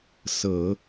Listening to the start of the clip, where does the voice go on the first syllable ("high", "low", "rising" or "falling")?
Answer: low